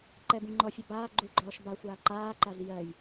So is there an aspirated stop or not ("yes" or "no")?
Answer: no